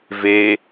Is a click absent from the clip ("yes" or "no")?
yes